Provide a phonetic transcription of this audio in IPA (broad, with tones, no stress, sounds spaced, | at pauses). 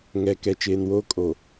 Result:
ŋ ɛ˨ k ɛ˨ t͡ʃ eː˨ n w oː˦ kʼ o˨